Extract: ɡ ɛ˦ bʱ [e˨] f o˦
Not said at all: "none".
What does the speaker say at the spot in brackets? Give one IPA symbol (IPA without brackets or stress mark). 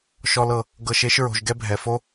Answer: ɛ˨